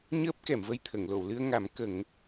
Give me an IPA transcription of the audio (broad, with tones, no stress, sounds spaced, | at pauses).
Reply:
ɲ əː˦˥ p̚ k ɛ˨˩˨ m v ə˧ j t̪ʰ ə˨˩˨ ŋ l o˨˩˨ w l ɨ˧ ə̯ ŋ a˨˩˦ m k ə˨˩˦ ŋ